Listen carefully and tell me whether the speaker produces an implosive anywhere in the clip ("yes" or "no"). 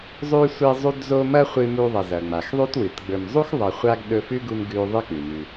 yes